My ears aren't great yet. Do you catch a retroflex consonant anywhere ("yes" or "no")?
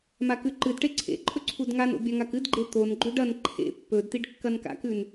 yes